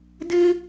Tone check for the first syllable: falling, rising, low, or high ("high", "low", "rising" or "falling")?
high